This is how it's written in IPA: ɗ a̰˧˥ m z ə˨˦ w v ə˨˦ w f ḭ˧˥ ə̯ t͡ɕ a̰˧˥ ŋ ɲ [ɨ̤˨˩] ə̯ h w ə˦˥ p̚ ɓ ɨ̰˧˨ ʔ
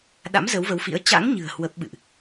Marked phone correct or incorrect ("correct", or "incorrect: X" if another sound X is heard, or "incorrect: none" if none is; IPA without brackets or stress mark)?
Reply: correct